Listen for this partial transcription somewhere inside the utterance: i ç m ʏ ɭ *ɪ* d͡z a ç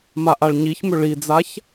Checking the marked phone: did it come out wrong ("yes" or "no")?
yes